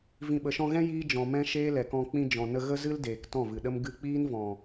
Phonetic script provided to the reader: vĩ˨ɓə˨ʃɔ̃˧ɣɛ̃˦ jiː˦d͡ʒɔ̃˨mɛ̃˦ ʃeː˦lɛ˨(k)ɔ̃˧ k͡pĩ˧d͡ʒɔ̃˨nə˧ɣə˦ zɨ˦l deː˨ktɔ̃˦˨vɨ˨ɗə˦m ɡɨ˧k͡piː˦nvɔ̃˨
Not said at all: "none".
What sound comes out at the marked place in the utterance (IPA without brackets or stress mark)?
k